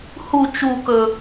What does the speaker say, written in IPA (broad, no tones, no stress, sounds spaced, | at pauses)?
h u t͡ʃ u k ɵ